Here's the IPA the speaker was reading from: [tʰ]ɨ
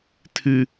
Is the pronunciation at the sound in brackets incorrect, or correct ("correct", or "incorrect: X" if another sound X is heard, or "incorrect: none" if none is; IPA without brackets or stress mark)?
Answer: correct